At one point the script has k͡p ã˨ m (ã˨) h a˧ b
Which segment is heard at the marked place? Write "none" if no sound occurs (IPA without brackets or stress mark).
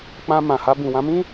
ã˨